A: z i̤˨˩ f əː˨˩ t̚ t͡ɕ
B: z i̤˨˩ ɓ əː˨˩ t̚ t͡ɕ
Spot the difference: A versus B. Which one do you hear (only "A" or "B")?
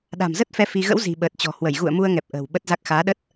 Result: B